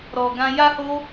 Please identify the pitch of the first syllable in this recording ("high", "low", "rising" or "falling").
low